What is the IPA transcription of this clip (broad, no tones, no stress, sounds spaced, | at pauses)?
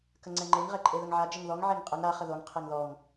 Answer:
k ə ŋ͡ǀ ɛ ŋ͡ǃ e ŋ ʁ ɛ ǃʼ e ð ə ŋ ʕ a d͡ʒ ə ŋ ð ɔ ŋ ʕ e ŋ qʼ ə ŋ ɾ a χ ə ð o ŋ qʰ e ŋ ð ɔ ŋ